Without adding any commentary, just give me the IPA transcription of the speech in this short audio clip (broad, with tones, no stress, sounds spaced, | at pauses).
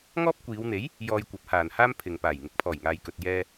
ŋ ɔː˥ p̚ kʷ iː˨˧ w n̪ e˨˥ j | j ɔː˧ j kʷ ɐ˨˥ p̚ h aː˨ n h aː˥ m pʰ ɪ˨ ŋ p aː˨˩ j ŋ ɪ˨ k̚ pʰ ɔː˨˩ j ŋ aː˨ j k ɵ˨ t̚ j ɛː˧